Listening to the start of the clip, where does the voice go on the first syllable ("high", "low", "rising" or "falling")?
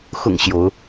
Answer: low